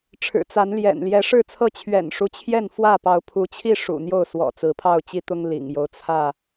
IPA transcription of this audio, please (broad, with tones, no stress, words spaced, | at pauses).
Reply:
ʈ͡ʂʰɻ̩˨˩t͡sa˨˦nljɛ̰˨˩n ljɛ˨˦ʂɻ̩˥˨t͡sʰɤ˥˨ t͡ɕʰɥɛ̰˨˩nʂu˦t͡ɕʰjɛ˥˨nfwä˥˨ pɑ˨˦ʊ̯pʰu˨˦t͡ɕʰi˥˨ ʂṵ˨˩n̪jo˥˨ʊ̯ swɔ̰˨˩t͡sɹ̩˨˦pʰɑ˥˨ʊ̯ t͡ɕi˦t̪ʊ˦ŋ lḭ˨˩ŋjo˦ʊ̯ t͡sʰä˥˨